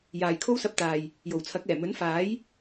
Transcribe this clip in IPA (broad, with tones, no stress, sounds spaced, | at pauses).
j aː˨ j kʰ o˥ w s ɐ˧ p̚ t̪ aː˨ j | j o˨˩ w t͡sʰ ɐ˨˥ k̚ ɛː˨˩ m ɵ˨˥ n f aː˨˥ j